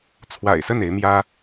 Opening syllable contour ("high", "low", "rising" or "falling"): low